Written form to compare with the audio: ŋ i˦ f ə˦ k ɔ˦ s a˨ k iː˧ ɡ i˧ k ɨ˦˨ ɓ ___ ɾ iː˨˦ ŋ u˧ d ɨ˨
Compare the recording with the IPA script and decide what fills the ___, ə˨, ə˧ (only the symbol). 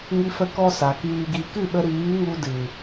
ə˧